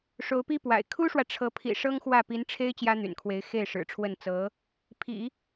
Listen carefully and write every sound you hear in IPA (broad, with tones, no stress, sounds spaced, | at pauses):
ʂ o˧˥ ʊ̯ p i˥ p w a̰˨˩ ɪ̯ kʰ u˥ ʂ w ä˨ ʈ͡ʂʰ ɤ˧˥ pʰ ḭ˨˩ ʂ ɤ˥ ŋ x w ä˥˩ p i˧˥ n ʈ͡ʂʰ e˥ ɪ̯ t͡ɕ j ä˥ n̪ y̰˨˩ n kʰ w e˧˥ ɪ̯ x e˥˩ ɪ̯ ʂ ɻ̩˨˩ ʈ͡ʂʰ w ə˥˩ n t͡s ɤ˧˥ | pʰ ḭ˨˩˦